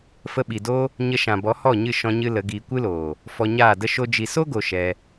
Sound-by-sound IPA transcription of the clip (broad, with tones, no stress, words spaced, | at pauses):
fə˧ɓi˨do˦ | ɲə˦ ʃã˨bɔ˨˦hɔ˦˨ɲɨ˦˨ ʃɔ̃˦ɲɨ˦lə˨˦ɡiː˧ kʷɨ˦loː˨ | fɔ˧ɲaː˦˨də˦ ʃo˦d͡ʒi˧ so˦ɡo˨ ʃɛ˧